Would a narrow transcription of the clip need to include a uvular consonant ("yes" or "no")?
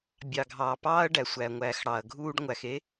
no